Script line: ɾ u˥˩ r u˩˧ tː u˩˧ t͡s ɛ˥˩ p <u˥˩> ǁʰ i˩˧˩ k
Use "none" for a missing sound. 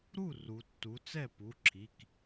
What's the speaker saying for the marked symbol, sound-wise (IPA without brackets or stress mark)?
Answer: u˩˧˩